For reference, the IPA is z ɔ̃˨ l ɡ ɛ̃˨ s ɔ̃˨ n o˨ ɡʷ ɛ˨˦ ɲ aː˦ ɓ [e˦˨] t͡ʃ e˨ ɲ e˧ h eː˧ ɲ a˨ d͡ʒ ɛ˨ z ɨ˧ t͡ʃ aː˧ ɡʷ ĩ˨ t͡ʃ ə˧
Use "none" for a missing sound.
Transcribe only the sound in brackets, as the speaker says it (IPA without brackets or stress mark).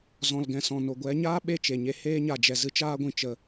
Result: e˦˨